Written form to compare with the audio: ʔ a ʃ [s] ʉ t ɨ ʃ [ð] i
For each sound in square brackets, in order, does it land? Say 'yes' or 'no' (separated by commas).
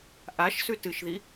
yes, yes